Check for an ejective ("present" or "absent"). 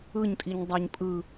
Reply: present